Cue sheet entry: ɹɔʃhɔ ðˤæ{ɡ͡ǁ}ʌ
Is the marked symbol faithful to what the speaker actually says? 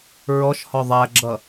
yes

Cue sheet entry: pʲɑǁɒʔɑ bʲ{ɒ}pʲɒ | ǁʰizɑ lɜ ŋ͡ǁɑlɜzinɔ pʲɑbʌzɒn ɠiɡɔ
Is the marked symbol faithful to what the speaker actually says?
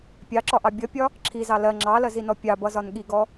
no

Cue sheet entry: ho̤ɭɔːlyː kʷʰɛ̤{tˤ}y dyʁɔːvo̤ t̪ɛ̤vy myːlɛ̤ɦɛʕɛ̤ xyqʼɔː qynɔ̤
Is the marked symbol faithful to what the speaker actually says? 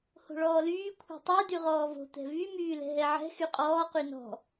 yes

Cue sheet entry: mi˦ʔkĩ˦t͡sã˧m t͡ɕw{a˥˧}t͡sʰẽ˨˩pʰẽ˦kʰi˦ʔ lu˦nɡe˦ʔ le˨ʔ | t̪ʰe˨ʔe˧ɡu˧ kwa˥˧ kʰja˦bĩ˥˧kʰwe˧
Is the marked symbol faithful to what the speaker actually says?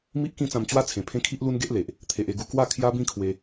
yes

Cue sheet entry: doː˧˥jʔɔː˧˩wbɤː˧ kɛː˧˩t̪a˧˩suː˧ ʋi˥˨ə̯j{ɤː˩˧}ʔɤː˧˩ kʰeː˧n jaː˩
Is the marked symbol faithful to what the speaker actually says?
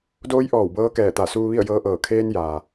no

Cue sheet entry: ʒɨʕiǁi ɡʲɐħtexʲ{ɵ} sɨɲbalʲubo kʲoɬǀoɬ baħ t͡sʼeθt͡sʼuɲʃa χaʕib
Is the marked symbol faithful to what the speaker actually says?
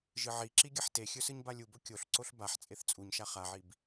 yes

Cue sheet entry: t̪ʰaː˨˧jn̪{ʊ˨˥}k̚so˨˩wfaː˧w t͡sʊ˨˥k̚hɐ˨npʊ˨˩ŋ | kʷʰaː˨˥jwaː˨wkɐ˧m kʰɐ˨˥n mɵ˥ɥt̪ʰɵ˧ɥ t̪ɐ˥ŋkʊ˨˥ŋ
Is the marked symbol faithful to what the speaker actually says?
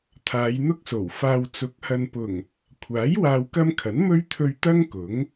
no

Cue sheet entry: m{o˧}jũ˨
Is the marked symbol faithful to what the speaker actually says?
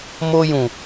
yes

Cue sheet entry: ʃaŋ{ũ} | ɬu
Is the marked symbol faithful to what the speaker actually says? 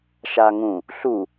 yes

